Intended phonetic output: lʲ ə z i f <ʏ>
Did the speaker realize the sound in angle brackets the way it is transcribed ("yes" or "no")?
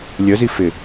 no